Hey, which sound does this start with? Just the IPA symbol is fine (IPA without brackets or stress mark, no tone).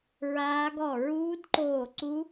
ɹ